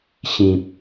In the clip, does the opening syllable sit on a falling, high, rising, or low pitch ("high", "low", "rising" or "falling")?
low